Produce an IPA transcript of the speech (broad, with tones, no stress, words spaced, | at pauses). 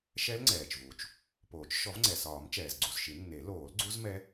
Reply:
ʃɛ˦˥lŋ͡ǀɛː˩t͡ʃvu˩t͡ʃ | poː˨˩˦t͡ʃ ʃɔ˨˩˦vŋ͡ǀɛ˩ sɒː˨˩˦m t͡ʃɛː˩zɡ͡ǀu˩zʃi˨˩˦nːe˨˩˦ loː˨˩˦lɡ͡ǀu˦˥zmɛ˦˥